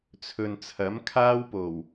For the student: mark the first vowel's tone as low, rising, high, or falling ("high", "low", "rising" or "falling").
low